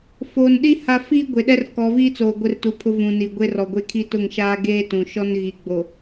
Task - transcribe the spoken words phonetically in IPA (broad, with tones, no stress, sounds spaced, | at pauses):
f oː˨ n ɗ i˦ h a˦ f iː˦ ɡʷ e˨ ɗ ɛ˦ r k ɔ˨˦ v iː˦ t͡s oː˨ ɡʷ ɪ˦ r t u˨˦ pʰ ʊ˦ v ũ˨ n i˨ ɡʷ e˦ r ɔ˨ ɡʷ e˦ kʰ i˦ t ʊ˦˨ ŋ ʃ aː˦ ɡ eː˦ t ũ˨ ʃ ɔ˦ n ɣ i˨ ɡ͡b o˨